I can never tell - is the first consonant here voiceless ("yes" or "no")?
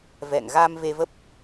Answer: no